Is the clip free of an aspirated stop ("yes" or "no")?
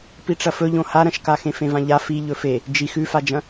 yes